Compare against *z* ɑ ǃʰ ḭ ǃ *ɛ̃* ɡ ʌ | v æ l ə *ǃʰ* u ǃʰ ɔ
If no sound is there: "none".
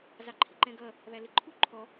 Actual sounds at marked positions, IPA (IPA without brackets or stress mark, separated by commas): z, ɛ̃, ǃʰ